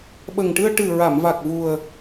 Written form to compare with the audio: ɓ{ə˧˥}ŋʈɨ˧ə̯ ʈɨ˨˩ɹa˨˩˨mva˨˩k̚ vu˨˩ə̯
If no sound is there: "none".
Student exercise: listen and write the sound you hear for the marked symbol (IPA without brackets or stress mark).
ə˨˩